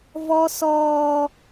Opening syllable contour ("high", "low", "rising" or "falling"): high